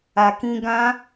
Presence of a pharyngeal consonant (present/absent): absent